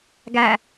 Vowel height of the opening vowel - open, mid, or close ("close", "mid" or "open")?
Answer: open